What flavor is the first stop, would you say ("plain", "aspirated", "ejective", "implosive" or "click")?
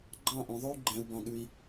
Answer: click